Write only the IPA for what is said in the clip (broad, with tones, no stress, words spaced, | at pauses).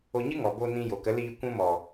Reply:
o˧ɲɨ˦ŋɔ˨ bo˧nĩ˧jo˨ kə˨˦liː˧ kʷũ˧mɔ˨